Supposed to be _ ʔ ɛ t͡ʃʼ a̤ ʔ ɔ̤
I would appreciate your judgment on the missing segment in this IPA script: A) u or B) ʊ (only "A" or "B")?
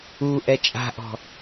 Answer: A